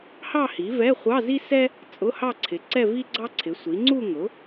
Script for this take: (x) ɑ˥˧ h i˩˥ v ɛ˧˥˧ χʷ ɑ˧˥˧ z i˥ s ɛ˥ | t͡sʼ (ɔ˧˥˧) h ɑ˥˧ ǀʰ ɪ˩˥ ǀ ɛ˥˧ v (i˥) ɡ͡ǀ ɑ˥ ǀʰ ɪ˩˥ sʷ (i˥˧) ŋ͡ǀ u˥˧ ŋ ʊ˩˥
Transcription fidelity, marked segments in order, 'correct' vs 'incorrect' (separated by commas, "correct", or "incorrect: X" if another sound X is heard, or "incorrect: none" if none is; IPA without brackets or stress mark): incorrect: h, incorrect: ʊ˧˥˧, correct, incorrect: i˩˥